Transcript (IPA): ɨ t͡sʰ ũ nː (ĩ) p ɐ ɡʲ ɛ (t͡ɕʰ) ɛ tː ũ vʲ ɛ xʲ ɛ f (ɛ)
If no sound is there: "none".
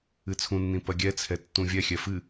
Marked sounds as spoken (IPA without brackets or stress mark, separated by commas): ĩ, t͡sʰ, ɨ